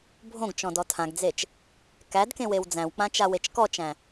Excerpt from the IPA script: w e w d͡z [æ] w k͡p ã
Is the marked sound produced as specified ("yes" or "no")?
no